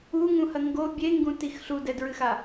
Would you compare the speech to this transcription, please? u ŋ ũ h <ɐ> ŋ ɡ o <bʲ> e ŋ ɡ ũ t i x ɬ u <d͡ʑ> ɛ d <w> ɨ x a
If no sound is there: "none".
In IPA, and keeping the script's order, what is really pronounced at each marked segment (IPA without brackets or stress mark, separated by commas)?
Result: ɐ, bʲ, d, ɹ